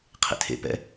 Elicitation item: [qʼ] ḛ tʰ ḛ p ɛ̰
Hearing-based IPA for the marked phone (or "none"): qʰ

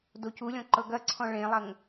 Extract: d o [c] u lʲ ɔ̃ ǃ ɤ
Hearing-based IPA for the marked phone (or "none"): c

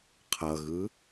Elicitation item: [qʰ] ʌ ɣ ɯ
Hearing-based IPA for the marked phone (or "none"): qʰ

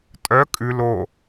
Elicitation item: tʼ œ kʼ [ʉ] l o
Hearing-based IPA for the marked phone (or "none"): ʉ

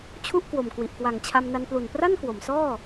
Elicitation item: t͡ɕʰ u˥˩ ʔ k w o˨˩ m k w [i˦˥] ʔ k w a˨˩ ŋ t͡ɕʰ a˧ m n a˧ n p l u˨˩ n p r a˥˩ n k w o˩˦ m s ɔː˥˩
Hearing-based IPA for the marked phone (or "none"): i˨˩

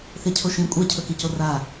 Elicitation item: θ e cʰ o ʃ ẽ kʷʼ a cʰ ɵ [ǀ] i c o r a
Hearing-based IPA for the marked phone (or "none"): k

